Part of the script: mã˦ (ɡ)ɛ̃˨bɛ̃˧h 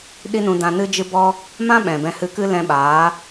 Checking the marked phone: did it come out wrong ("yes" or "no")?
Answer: yes